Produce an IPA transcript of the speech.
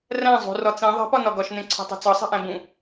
r æ̃ zˤ ṳ r ɒ t͡s ĩ ðˤ e̤ p ɒ n ɒ ɡ ɒ ʃ n ẽ ǀʰ o̤ tˤ o̤ t͡s ɒ sˤ i̤ ʔ æ̃ b ũ

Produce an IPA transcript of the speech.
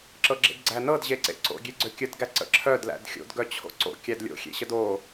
ǁ ɤ ɡ͡ǁ ḛ d ɡ͡ǀ æ n ɤ d ʑ e ǀ ḛ ǀ o̰ ɡʲ e ɡ͡ǀ ø kʲ ə d ɡ æ ǀ ə̰ ǁʰ œ d l æ̰ d xʲ o̰ d ɡ œ t͡ɕʰ o̰ ǀ o̰ kʲ æ d lʲ o̰ xʲ ḛ ɕ ə d o

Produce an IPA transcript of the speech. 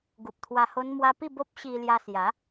ɡ u˨ p̚ t̪ʰ w a˧ h o˧ n m w a˧ p i˥˧ b o˦ p̚ ɕ i˧ l j a˧ s j a˨˦

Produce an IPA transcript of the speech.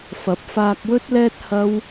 f ɐ˨˥ p̚ f aː˧ k̚ w ɵ˥ t̚ l ɛː˥ t̚ h ɐ˥ w

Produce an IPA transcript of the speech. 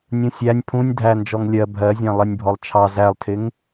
nʲ ũ sʲ æ nʲ pʰ ũ nʲ dʱ æ n d͡ʒ ɔ ŋ lʲ ɜ bʱ ɜ zʲ æ̃ lˠ ɛ nʲ bʱ ɔ lˠ t͡ʃʰ ɑ z æ lˠ tʰ ɪ ŋ

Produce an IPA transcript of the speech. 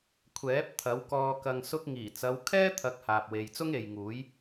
kʷʰ ɛː˨˥ p̚ t̪ʰ ɐ˨˥ w k ɔː˧ k ɐ˨ ŋ s ʊ˧ k̚ ŋ iː˨˩ t͡s ɐ˨˧ w kʰ ɛː˥ t̪ʰ ɐ˨˥ k̚ h aː˨ p̚ w e˨ j t͡s ʊ˥ ŋ e˨ j ŋ uː˨˥ j

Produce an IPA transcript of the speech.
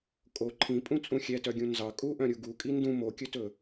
kʼ o ǃʰ ĩ pʼ ũ t͡sʼ ũ xʲ ɛ t œ ɡʲ ũ n z ɑ kʼ u ʔ œ̃ ɾʲ u ɡ u kʼ i n d ũ m o kʲ ɵ t ɵ

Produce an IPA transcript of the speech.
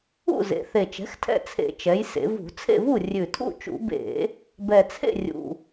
ṵ˥˨ z ḛ˩˧ θ e˨˩ t͡ʃ ɛ̤˩˥ x tʰ ɛ̰˥˨ t͡sʰ ḛ˧˩˧ t͡ʃ ɛ˩˧ j s ḛ˩˧ v ṳ˧˩˧ t͡sʰ ḛ˥˨ v u˥˨ rʲ ʉ˨˩ tʰ ṵ˥˨ t͡ʃ ṵ˧˩˧ b ḛ˧˩˧ | b ɛ˨˩ t͡sʰ ḛ˥˨ rʲ ṵ˨˩

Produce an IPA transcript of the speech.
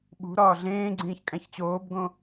ɓ ṳ ɾ ɒː ɮ ẽː ɡ͡ǀ ĩː ç kʼ æ̃ ç t͡ɕ oː b ɡ õ

